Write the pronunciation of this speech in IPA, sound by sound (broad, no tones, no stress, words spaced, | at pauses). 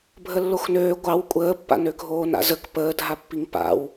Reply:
bʱəlːoxnøː ɡʷɑw kʷʼəːpːa̰nø ɡʱoːna̰zək pəːdʱapːiŋ pa̰w